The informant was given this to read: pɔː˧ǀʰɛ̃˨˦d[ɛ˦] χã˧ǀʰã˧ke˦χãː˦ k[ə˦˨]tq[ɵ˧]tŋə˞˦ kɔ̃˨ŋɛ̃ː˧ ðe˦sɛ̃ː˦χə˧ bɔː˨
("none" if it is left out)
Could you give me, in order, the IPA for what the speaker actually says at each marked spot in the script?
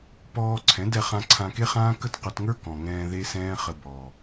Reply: ɛ˧, ə˦˨, ɵ˧

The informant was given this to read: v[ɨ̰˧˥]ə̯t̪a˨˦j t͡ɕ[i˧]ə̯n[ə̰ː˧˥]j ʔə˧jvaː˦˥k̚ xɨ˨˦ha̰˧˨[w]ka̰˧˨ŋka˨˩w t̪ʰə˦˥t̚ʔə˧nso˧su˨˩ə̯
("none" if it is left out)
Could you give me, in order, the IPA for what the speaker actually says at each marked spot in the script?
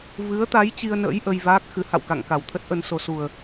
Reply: ɨ˨˦, i˧, ə̰ː˧˥, w

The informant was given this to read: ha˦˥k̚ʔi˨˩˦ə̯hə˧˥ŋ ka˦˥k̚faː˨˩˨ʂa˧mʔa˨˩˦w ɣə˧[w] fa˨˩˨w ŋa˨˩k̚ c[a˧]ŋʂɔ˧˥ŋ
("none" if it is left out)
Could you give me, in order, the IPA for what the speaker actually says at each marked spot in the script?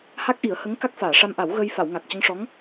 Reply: j, ə˧

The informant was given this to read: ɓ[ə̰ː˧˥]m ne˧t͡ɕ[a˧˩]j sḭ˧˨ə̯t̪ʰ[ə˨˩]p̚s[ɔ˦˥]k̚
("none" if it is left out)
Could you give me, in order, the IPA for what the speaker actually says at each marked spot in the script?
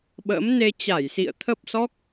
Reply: ə̰ː˧˥, a˧˩, ə˦˥, ɔ˦˥

